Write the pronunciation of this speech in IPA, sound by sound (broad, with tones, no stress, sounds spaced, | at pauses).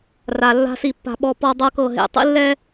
r a˨ lː a̤˦ s i˦˨ pː a̤˦ ɓ ɔ˦ p ɔ˦ dˤ ɤ˦ k ɤ˦˨ ɦ ḛ˦ tˤ ḭ˦ lː ɛ˦